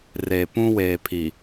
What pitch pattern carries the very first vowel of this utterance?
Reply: low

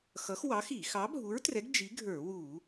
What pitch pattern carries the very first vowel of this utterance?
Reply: rising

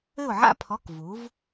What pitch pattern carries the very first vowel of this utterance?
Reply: falling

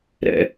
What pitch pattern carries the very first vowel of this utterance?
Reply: low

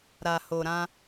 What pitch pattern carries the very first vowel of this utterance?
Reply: low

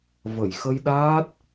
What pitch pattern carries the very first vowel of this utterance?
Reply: low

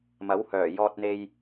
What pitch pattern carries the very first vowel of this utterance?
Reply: rising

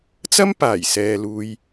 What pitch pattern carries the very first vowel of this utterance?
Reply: high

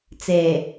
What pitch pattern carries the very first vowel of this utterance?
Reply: low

